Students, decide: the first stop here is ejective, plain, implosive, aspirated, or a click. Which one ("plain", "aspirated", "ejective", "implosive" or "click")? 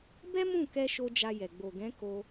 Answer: plain